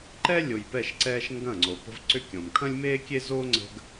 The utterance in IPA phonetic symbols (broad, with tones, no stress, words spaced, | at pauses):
ǃɛ˦ lʲo˨jpɛ˦˨ʃǀɛː˦ʃ ŋɡɐ̃˦˨ŋ͡ǀo˨pə̤˦v ǀʏ˦kʲõ˨m kʰɐ̃˦lʲmeː˦kʲe˦zoː˦ ŋ͡ǀə̤˦ɡ